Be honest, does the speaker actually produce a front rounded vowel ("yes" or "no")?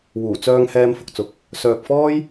yes